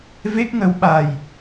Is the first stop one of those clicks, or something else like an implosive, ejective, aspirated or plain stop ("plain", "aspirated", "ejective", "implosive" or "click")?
plain